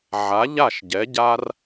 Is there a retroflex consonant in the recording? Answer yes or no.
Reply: no